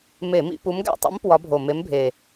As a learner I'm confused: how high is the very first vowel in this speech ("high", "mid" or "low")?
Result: mid